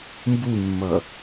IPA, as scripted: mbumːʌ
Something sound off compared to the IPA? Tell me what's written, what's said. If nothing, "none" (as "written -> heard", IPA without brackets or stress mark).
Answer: none